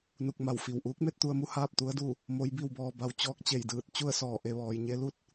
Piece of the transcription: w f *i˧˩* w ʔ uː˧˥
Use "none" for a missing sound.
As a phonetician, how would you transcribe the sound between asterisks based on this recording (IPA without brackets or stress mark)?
i˧˩